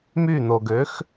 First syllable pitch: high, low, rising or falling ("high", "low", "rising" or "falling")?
falling